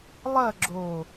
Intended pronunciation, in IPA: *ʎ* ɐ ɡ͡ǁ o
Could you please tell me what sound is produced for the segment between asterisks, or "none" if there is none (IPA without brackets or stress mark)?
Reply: lˠ